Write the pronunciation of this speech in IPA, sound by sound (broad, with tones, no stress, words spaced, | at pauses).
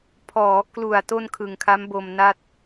pʰɔː˩˦klu˨˩a̯ to˥˩nkʰɯ˨˩ŋkʰa˦˥mbo˧m na˥˩t̚